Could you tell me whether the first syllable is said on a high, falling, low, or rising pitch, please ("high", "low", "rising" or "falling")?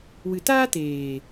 low